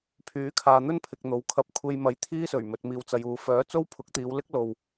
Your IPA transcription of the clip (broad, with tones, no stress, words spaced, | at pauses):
pʰyː˨˥kʰaː˨n̪ɵ˥n pʰɪ˨k̚ n̪o˨wkʰɐ˧p̚ kʷʰe˧jmɐ˨˥j t̪ʰiː˥sɵ˨˩ɥ mɵ˨t̚miː˨wt͡sɐ˨juː˨ fœː˨˥ t͡so˥wpʰʊ˨˥k̚t̪iː˨˧wlɪ˥k̚ lo˨w